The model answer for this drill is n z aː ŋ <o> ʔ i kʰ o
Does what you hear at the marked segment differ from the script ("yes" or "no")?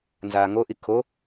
no